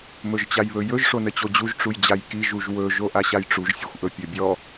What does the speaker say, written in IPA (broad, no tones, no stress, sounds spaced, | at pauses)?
m ɵ ʒ t͡ɕ a j β ɵ j ɵ ʒ ʂ o n ə t͡ɕ o d͡ʑ u ʒ ʈ͡ʂ u j d͡ʑ a j k i ʒ u ʒ w ɵ ʒ o ʔ a ɕ a j ʈ͡ʂ u ʒ sʲ ɵ xʷ ʔ ɵ pʲ ɵ bʲ ɔ